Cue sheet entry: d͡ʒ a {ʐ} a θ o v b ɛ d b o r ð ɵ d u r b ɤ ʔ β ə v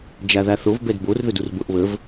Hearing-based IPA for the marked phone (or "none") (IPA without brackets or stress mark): ð